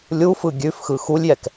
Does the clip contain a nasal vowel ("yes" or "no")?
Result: no